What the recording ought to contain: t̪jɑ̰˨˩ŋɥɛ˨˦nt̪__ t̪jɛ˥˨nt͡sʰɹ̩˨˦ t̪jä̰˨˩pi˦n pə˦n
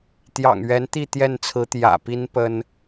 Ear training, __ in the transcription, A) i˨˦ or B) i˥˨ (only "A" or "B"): B